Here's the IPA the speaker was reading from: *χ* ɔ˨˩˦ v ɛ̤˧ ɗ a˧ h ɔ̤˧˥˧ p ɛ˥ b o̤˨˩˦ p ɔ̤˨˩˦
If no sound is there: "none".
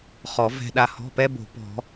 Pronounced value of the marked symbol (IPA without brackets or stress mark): χ